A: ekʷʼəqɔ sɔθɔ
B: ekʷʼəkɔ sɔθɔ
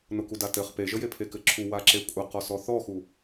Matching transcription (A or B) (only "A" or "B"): A